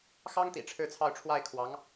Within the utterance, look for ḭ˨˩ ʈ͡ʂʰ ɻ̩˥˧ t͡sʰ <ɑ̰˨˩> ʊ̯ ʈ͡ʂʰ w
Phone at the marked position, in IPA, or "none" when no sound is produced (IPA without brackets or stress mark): ɑ˥˧